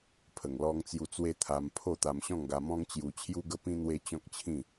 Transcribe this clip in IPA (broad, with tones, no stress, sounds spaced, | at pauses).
pʰ ə˨˩ ŋ l ɔ˧ ŋ t͡s j u˧ t͡s w e˦ t̪ʰ a˧ m pʰ o˥˧ t̪ a˧ m ɕ ɔ̃˥˧ ŋ ɡ a˧ m ɔ̃˦ ŋ t͡ɕ j u˧ t͡ɕʰ j u˦ ɡ ə˦ p ĩ˦ n̪ w e˦ t͡ɕ ɔ̃˦ k̚ t͡ɕʰ ĩ˥˧